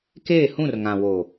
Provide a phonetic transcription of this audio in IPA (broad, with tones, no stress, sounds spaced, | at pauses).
k eː˦˨ h ũ˦˨ r ŋ ã˨ w o˨